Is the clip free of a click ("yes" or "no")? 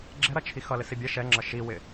no